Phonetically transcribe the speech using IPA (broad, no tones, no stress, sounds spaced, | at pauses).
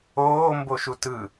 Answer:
oː m b o ʃ u t ɯ